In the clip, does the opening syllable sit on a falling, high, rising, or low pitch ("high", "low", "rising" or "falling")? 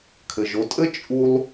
low